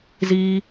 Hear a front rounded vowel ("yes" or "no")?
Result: no